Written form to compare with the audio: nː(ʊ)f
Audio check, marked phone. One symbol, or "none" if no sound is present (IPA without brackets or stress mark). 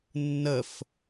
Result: ə